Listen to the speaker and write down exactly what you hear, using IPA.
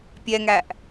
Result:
pʲ ɛ ŋ æ ʔ

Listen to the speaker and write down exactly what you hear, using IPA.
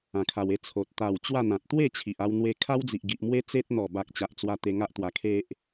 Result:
ã˧ kʰ a˧ w e˦ t͡sʰ o˨ t̚ t̪ a˨˩ w t͡ɕ w a˥˧ n̪ ã˨ t̚ t̪ w e˥˧ t͡ɕʰ i˨ ʔ a˧ w n̪ w e˧ kʰ a˦ w d͡z i˨ ʔ ɡ i˨ ʔ m w e˦ t͡s e˦ t̚ n̪ ɔ˨˩ b a˨ k̚ t͡ɕ a˨ ʔ t͡s w a˧ t̪ e˧ ŋ a˦ ʔ t̪ w a˨˩ kʰ e˦ ʔ

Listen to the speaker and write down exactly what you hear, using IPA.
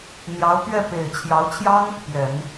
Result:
n̪ j ɑ˧˥ ʊ̯ p ɥ ɛ˥˩ p e˨˩ ɪ̯ t͡ɕʰ j ɑ˧˥ ʊ̯ t͡ɕʰ j ɑ˥ ŋ | p j ɛ˨˩˦ n

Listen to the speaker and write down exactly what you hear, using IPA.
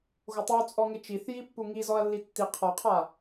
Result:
ɣ o tˤ u t͡sʼ ɔ ŋ e t͡ʃ i θ j i pː u ŋ i z ɔ ɐ̯ lː i tː i qʰ ɔ qʰ a

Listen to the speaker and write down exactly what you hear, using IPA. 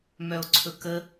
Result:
m œ o̯ ǀʰ ɵ k ə

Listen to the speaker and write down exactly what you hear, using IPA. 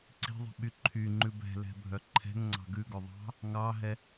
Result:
ǀ i̤ ðˤ i̤ ɓ y ǃʰ y ŋ͡ǃ ʉ b ɛ̤ l ɛ̤ bʱ œ ǃʰ ɛ̤ ŋ ŋ͡ǀ ɑ̤ ɡ ʉ ɡ ɵ ðˤ ɑ̤ | ŋ ɑ ɦ ɛ

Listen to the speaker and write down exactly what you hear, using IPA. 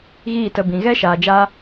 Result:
ɣ iː˦˨ t ə˧ b ĩ˨ ɣ ɛ˦ ʃ aː˨ d͡ʒ aː˦

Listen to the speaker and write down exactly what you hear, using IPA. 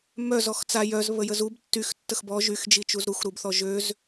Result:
m œ z ɔ x t͡s a j œ z β ə j ə z u b tː y x tː ə x b ɔ ʒ y x d͡ʒ i t͡ʃ u z ɾ u x ɾ u b θ ɔ ʒ ø z

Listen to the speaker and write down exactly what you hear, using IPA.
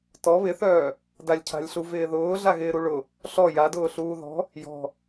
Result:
t ɔ β ɪ θ œː | d a lʲ cʰ a̤ lʲ ɬ u v ɪː ð ʊː ɮ a ɣ ɪː ɾ u ɭ ʊ | ɬ ɔ j a d ʊː ɬ uː ð ɔ̤ | j ɔ̤

